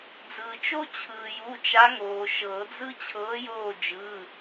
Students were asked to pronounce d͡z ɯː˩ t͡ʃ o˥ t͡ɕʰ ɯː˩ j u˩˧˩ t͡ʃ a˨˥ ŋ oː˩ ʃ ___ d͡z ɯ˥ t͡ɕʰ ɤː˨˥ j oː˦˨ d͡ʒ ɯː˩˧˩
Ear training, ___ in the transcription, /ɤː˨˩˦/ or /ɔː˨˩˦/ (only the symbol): ɤː˨˩˦